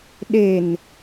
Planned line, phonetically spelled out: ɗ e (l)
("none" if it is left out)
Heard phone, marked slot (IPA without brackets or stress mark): n